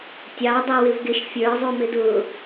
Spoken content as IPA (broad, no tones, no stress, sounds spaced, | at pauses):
tʲ ɑ dˤ ɛ w ɪ v ɡ ɪ ʃ fʲ ə˞ zˤ u m ɪ d ʊ